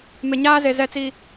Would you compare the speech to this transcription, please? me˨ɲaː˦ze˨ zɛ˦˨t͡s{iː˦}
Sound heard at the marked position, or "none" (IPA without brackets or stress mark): iː˦